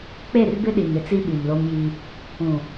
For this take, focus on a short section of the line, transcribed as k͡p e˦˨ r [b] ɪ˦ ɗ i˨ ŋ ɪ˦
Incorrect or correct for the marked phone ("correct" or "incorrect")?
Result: correct